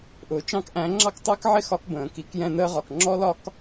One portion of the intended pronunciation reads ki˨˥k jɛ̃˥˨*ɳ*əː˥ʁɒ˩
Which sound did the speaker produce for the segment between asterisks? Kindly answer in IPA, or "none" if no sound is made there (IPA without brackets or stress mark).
n